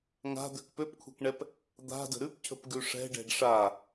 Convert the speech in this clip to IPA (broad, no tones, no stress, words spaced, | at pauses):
ŋa̤d̪øk pøpkʷʰɛ̤kɳɛp | d̪a̤də̤ ɾʉpcʰə̤pɡʉ ʂɛ̤ɖɛ̤ɖ ʂa